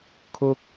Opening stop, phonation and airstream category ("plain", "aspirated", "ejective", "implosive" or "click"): aspirated